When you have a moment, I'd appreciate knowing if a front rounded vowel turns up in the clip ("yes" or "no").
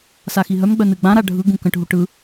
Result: yes